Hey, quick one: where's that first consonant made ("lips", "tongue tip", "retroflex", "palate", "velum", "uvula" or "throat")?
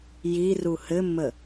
palate